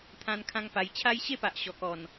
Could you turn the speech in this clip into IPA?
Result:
t̪ʰ ã˦ n kʰ ã˦ ŋ p a˧ j t͡ɕʰ a˦ j ɕ e˥˧ p a˨ ʔ ɕ ɔ˨˩ k ɔ˨˩ n

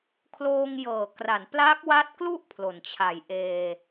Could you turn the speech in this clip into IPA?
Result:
kʰ l oː˧ ŋ j ɤː˨˩ k r a˩˦ n p l a˦˥ k̚ w a˦˥ t̚ k l u˥˩ ʔ pʰ l o˩˦ n t͡ɕʰ a˨˩ j ʔ eː˧

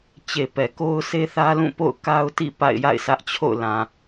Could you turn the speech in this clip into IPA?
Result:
t͡ɕ e˨ p ɛ˨ k o˦ ʊ̯ sʰ e˦ θ ä˦ l ũ˦˨ p o̰˦˨ ʊ̯ k a˦ ʊ̯ t ḭ˦˨ p a̰˦˨ ɪ̯ j a̰˦˨ ɪ̯ s ä˦ ʔ t͡ɕʰ o̰˦˨ ʊ̯ l ã˨

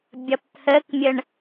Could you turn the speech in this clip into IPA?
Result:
bʲ ʌ p t̪ʰ ə k mʲ ə ɳ

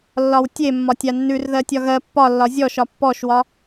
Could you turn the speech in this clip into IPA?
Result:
lː ɒ w tʲ e mː ɒ tʲ a nː ʉ r ð ɜ tʲ ɒ ɣ ɜ pː ɒ lː ɒ zʲ ɔ ʃ ɒ pː ɔ ʃ w ɒ

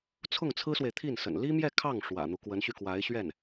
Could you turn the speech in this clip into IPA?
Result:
t͡sʰ ʊ˥˩ ŋ t͡sʰ ɹ̩˥ s w e˨ ɪ̯ t̪ʰ i˥˩ n s ə̰˨˩ n l i˥ m j ɛ˥˧ kʰ ɑ˥˩ ŋ ʂ w ä̰˨˩ n̪ u˦ k w ə˧˥ n ɕ y˧ k w a˧˥ ɪ̯ ɕ ɥ ɛ˥˩ n

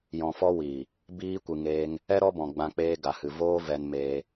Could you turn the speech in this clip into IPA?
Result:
j ɔ̃˨ f ɔ˧ w iː˨ | b iː˧ kʷ ɨ˨ ŋ eː˧ ŋ | ɛ˦ ɾ ɔ˦ b ɔ̃˨ ɡ͡b ã˧ k͡p eː˧ ɡ a˨ h ɨ˨ v oː˧ v ɛ˧ n m eː˧

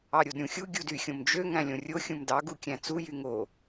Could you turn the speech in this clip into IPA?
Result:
ɑ ɾʲ o d ɾʲ ũ xʲ u ɡʲ u d y xʲ õ m d͡ʒ ø ŋ æ̃ lʲ õ rʲ o xʲ ũ m d ɑ ɡ u kʲ æ̃ t͡s u j y ŋ o

